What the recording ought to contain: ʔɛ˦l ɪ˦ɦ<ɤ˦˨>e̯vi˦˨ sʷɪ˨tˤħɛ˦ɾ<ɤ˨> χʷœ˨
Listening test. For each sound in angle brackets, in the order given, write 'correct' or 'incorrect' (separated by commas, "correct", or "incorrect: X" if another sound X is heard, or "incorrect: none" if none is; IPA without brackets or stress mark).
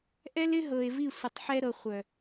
incorrect: ɤ˨, correct